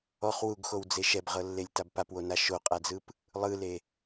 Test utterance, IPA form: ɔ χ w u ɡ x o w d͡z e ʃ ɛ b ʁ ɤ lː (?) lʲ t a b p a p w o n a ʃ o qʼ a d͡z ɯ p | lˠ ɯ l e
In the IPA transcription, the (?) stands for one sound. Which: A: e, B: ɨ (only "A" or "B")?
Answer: A